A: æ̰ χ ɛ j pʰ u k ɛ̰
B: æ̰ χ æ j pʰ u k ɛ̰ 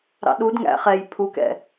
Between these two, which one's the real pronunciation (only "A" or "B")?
A